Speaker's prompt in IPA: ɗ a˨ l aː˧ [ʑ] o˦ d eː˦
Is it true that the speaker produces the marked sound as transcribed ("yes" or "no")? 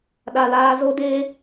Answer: no